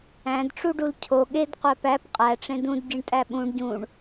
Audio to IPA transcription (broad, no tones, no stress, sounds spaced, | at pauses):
æ̃ d ʈ͡ʂ u ɖ u l cʰ o ɠ e d qʷ æ p æ p qʼ æ ʈ͡ʂ ẽ d ũ d ɟ i ɳ tʼ æ ɓ ũ ɳ ɟ ũ ɳ